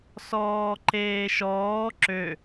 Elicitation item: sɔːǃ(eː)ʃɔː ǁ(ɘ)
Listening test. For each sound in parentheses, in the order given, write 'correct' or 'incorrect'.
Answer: correct, incorrect

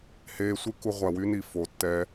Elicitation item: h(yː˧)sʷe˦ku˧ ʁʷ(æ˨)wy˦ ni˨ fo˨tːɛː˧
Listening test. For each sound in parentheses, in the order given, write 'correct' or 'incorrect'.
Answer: incorrect, correct

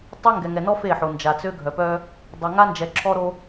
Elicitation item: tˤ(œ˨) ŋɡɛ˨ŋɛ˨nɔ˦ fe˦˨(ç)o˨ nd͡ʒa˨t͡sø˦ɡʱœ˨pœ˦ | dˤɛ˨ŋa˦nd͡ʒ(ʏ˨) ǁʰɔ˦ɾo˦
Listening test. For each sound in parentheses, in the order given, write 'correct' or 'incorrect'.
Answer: incorrect, incorrect, incorrect

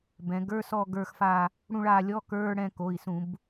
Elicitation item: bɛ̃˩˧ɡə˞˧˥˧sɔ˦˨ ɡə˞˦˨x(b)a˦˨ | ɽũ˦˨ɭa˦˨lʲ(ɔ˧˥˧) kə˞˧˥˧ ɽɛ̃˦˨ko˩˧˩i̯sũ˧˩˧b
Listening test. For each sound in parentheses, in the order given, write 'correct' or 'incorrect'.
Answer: incorrect, correct

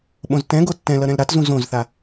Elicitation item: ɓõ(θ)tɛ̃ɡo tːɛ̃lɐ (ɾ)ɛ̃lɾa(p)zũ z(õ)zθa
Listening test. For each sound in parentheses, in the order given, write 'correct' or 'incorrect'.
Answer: incorrect, correct, incorrect, correct

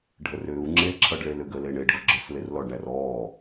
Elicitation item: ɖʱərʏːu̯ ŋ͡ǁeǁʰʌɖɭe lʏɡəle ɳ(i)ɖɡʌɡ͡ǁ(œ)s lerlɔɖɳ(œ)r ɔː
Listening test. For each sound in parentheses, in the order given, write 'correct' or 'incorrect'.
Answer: incorrect, correct, incorrect

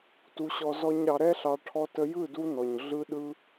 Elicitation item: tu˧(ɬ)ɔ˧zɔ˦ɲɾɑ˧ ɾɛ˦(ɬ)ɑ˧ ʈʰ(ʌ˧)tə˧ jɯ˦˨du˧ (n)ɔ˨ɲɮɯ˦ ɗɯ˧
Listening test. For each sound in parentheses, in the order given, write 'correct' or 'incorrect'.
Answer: incorrect, correct, incorrect, correct

